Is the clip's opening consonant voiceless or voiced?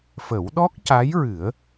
voiceless